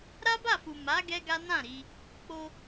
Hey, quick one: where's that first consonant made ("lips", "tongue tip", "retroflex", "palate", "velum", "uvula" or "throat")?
tongue tip